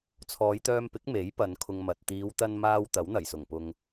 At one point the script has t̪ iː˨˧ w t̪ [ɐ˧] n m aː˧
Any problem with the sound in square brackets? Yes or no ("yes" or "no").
no